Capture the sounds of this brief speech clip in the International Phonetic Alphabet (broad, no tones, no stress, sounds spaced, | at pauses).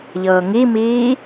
ʎ ɤː ŋ i m iː